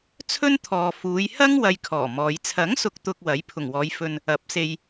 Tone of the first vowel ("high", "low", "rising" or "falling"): high